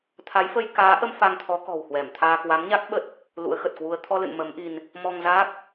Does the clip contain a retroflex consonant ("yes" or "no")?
no